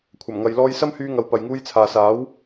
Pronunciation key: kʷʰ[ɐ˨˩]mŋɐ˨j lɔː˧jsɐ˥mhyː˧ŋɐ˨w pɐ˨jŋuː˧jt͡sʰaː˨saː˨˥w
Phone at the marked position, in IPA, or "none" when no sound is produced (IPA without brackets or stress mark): ɐ˨˩